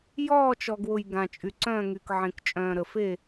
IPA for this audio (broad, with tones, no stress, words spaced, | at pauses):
jɔː˦˨t͡ʃɔ˨ɡwʊ˨j ɡã˨t͡ʃʼy˨ǀœ̃ː˦˨ŋy˨k ʕẽ˨kt͡ʃʼœ̃ː˨ ɾə˨fe˦˨